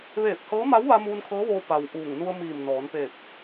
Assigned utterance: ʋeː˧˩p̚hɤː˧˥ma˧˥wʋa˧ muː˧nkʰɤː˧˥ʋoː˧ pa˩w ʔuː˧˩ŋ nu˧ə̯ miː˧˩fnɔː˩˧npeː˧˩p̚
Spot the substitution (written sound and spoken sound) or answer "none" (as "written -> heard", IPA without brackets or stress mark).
f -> m